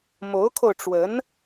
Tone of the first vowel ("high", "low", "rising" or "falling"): rising